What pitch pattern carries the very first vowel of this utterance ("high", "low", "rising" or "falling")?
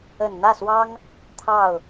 low